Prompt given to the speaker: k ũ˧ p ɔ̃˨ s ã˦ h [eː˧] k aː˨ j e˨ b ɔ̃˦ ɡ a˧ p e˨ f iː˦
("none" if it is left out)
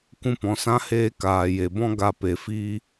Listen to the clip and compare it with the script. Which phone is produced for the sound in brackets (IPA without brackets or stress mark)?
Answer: eː˧